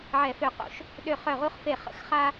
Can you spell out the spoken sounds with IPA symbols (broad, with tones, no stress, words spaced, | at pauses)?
ʕɛ˧˩˧fø˧˩ qo̰˧˩˧ʃ | ɗø˧˩χœ˧˩ʁu˧χfe˧˩ χə̰˧˩˧xχa˧